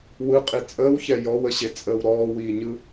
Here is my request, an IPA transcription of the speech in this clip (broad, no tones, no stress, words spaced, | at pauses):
wɯqʼi t͡sʼəːwçɛ jɔwəɕet͡sʼəːw ɾɔːwiːɲɯ